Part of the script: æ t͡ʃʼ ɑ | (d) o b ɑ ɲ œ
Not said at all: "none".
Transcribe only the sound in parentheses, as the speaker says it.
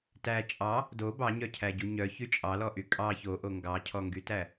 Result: d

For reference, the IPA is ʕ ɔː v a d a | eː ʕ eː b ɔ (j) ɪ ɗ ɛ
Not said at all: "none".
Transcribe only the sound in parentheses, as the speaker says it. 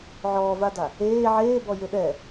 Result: j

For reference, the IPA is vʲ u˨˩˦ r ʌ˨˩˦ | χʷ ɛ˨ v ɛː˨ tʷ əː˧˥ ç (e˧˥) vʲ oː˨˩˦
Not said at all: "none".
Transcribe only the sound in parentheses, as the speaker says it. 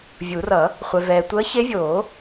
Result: e˧˥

